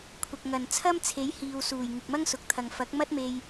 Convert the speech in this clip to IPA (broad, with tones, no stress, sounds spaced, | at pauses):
kʷʰ ɐ˨ k̚ ŋ ɐ˨ n t͡sʰ ɐ˥ m t͡sʰ e˨˥ j h iː˨ w s uː˨˩ j ŋ ɪ˨ k̚ m ɐ˥ ŋ s ʊ˨ k̚ t̪ʰ ɐ˨ ŋ f ɐ˨˥ k̚ m ɐ˥ t̚ m e˧ j